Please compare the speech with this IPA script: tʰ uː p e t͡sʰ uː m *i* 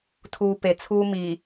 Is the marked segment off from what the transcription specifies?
no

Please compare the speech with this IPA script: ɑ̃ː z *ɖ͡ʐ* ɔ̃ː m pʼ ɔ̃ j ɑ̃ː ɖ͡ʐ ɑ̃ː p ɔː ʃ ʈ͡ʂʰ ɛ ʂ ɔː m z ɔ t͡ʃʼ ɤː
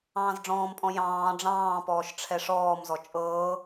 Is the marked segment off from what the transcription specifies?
no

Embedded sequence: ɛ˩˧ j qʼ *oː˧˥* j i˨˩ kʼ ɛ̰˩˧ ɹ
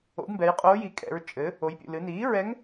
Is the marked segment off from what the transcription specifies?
no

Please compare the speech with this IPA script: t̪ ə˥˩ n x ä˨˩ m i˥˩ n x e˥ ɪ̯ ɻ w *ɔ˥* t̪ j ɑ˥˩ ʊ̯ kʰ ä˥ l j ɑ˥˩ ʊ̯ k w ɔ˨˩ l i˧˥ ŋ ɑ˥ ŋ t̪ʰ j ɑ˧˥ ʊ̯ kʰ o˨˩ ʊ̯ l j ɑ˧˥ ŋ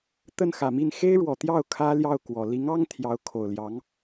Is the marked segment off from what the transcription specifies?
yes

